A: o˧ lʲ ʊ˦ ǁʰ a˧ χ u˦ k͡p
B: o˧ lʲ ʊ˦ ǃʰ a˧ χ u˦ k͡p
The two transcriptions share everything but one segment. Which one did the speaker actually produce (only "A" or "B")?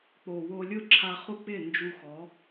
A